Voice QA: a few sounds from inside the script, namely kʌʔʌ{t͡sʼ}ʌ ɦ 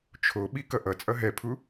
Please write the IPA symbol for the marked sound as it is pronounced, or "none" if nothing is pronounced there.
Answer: t͡sʼ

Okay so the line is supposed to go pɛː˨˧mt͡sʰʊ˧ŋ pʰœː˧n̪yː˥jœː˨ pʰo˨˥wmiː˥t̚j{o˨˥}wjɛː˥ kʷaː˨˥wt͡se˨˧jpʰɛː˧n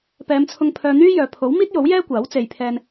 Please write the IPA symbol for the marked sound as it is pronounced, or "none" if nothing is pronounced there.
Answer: o˨˥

